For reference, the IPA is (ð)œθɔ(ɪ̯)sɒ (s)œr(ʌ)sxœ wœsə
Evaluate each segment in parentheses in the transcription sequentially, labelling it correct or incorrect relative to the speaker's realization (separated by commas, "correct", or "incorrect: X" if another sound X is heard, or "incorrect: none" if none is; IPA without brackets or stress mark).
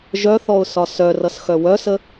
incorrect: ʒ, incorrect: ʊ̯, correct, correct